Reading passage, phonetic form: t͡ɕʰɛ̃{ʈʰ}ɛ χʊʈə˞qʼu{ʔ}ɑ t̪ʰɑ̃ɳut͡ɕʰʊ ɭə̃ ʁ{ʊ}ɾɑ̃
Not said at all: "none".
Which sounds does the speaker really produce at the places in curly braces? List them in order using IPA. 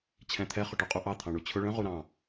t̪ʰ, ʔ, u

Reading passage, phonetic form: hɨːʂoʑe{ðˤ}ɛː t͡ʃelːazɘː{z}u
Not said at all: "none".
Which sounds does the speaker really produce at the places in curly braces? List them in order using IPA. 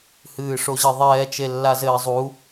ðˤ, zˤ

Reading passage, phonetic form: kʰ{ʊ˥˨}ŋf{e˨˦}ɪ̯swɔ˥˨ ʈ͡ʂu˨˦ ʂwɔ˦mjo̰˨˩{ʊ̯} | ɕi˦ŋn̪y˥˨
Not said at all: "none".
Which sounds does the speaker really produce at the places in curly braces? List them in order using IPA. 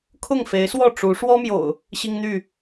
ʊ˥˨, e˨˦, ʊ̯

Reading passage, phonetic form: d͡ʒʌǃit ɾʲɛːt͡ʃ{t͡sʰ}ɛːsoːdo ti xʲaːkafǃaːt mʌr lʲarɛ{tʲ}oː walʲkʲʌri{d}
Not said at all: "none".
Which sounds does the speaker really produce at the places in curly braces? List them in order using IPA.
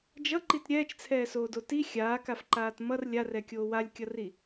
t͡sʰ, kʲ, none

